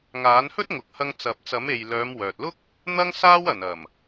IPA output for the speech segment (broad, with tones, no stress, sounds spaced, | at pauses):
ŋ aː˨˥ n h ɵ˥ t̚ ŋ ʊ˨ k̚ h ɐ˧ ŋ t͡s ɐ˨ p̚ t͡s ɐ˨˥ m e˨ j l œː˨˧ m w œː˨ t̚ l ʊ˥ k̚ | n̪ ɐ˥ ŋ s aː˥ w ɐ˨˩ n ɐ˨˩ m